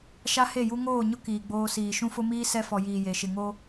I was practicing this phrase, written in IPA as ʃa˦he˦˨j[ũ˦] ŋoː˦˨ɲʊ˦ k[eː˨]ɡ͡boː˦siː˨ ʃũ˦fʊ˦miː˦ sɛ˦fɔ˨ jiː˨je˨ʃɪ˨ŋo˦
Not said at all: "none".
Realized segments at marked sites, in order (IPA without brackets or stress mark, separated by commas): u˦, iː˨